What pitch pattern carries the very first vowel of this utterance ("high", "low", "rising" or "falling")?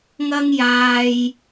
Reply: high